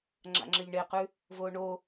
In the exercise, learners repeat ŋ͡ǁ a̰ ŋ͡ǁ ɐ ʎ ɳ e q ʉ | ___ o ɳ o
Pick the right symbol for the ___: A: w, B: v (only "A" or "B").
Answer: B